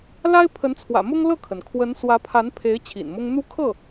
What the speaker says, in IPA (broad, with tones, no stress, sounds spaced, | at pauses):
l a˥ ɪ̯ pʰ ə˧˥ n t͡sʰ w ä̰˨˩ m ʊ˥ ŋ l ɤ˥˩ kʰ ə˩ n kʰ w ə˧˥ n s w ä˧˥ pʰ a˧˥ n pʰ e˧˥ ɪ̯ t͡ɕʰ ḭ˨˩ n m ʊ˥ ŋ n̪ u˥ kʰ ɤ˥˩